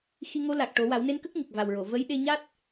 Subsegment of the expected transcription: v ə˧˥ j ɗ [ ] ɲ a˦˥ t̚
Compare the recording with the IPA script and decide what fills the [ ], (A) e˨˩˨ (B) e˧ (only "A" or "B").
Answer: B